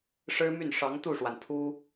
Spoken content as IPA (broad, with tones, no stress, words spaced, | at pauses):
ʂɻ̩˥my˥˩n ʂɑ˧˥ŋt̪u˥˩ʂwa˩npʰu˥